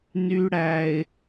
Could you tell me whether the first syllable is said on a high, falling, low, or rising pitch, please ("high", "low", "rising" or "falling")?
low